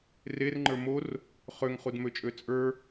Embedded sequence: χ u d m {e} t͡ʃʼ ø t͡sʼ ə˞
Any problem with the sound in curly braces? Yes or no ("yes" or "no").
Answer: yes